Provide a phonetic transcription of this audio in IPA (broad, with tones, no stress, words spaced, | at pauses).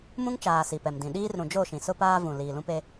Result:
mũ˦ŋt͡ʃaː˨ si˨pɛ˨mdĩ˨ ɗiː˦rɾũ˨d͡ʒo˦˨ʃĩ˨ sʊ˦paː˦ vũ˨ liː˨lũ˦pe˦